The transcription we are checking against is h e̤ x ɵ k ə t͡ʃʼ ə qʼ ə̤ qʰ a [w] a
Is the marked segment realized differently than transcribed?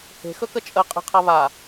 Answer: yes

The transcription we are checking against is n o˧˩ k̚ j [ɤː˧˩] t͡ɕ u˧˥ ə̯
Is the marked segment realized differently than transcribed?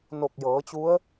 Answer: yes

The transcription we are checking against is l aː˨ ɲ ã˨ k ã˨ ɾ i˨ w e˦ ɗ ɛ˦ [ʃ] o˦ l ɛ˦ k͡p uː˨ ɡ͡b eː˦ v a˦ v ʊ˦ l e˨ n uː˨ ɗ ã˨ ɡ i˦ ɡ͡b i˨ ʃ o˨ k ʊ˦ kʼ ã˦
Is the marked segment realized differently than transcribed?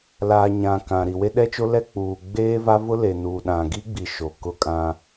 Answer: yes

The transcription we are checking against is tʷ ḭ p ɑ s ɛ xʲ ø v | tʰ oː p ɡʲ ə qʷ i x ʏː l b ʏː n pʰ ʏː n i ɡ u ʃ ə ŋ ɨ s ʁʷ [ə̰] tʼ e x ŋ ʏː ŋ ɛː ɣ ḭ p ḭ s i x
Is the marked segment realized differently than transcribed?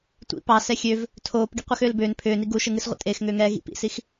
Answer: no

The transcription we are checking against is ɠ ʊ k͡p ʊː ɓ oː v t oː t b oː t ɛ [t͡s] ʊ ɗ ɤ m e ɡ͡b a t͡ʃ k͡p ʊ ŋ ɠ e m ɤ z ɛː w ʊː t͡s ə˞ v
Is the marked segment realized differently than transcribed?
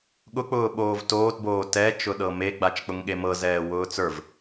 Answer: yes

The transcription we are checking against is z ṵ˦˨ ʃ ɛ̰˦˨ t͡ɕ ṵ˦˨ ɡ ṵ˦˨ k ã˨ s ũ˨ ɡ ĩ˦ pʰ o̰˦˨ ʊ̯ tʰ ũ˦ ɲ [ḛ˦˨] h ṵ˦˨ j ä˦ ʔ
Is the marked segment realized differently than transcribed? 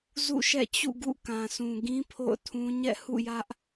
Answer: yes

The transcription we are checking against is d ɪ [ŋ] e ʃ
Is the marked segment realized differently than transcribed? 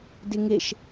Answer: no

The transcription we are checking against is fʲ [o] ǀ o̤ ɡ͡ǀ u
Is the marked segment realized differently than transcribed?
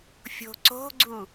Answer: yes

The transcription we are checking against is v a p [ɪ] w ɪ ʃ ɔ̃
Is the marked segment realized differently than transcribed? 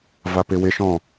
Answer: no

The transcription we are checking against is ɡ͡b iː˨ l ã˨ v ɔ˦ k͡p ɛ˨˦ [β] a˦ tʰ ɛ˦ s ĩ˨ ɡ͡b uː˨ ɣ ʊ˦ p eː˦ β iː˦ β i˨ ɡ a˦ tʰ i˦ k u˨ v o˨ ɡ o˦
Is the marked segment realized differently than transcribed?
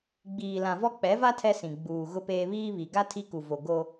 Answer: yes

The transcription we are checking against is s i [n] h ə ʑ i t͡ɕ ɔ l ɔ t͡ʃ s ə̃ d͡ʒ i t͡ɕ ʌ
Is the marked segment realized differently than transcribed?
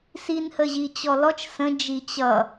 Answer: no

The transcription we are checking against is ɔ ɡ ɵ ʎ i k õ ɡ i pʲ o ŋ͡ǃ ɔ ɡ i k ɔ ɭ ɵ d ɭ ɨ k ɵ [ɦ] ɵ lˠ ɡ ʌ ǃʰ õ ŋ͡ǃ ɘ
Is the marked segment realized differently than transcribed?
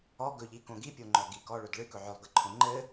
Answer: yes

